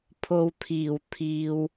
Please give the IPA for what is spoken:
pʰo˧wt̪ʰiː˨˩w t̪ʰiː˨w

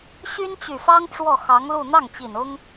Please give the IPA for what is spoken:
ɕy˥nt͡ɕy˨˩fɑ˥ŋ ʈ͡ʂwɔ˥˩xɑ˧˥ŋlu˥˧ n̪ɑ˥˩ŋt͡ɕi˨˩n ʊ˥ŋ

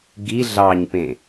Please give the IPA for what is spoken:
ɡi ɮɑɲpẽ

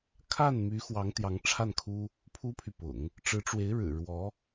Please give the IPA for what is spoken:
kʰa˥˩nmy˧˥xwɑ˧˥ŋ t̪jɑ˧˥ŋʈ͡ʂʰa˥˩nkʰu˥ | pʰu˥pʰy˨pʊ̰˨˩˦ŋ | ʈ͡ʂɻ̩˧˥ʈ͡ʂwe˧˥ɪ̯ ɻɻ̩˨˩ɻwɔ˧˥

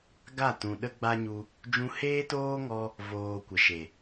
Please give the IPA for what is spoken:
ɡa˦˨ tũ˨ ɗə˦ɡ͡ba˦ɲu˧ | d͡ʒũ˧heː˦toː˦ŋɔ˧ | voː˧kʷə˨ʃe˨

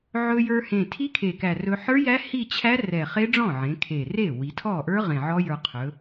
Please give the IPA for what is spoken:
ʕɵ˧jə˞˧hẽ˨˩ tʰi˦˥kʰe˨˩kæ˨˩ rɵ˧ħə˞˦˥jæ˦˥ hi˥˧t͡ɕʰæ˦˥rɛ˨˩ χe˦˥ɖ͡ʐɔ̃˥˩ʕẽ˩˧ kʰe˨˩re˥˩ wi˩˧tʰɔ˥˩ʔə˞˦˥ ʁẽ˨˩ʕɔ˦˥jə˞˧ qʰɵ˩˧

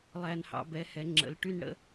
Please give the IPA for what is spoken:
lˠæ˦nhɑ̰˦ bɛ˨˦hɛ˨˦ŋ͡ǁə̰˨˦lʈy˦n ɽə̰˦

